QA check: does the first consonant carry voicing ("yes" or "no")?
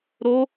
yes